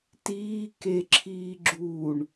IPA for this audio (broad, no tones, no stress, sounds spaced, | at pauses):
t iː k e ǁʰ iː ɡ͡ǁ uː ɳ